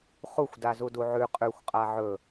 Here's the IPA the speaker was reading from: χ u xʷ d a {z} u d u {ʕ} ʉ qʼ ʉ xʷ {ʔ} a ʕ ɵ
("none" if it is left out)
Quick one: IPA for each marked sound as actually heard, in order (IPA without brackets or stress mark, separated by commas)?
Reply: z, ʕ, qʼ